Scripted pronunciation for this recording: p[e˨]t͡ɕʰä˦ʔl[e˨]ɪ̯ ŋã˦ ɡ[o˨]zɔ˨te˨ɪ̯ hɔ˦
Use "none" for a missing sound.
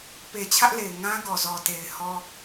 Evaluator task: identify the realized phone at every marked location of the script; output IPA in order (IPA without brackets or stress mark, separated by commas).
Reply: e˨, e˨, ɔ˨